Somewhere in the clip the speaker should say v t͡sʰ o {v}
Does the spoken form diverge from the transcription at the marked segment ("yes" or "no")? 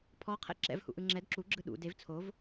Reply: no